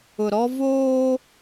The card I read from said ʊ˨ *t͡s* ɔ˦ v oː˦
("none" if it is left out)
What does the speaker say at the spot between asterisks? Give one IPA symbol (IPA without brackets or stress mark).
ɾ